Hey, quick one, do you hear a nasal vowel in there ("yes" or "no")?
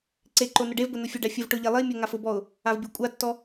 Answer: no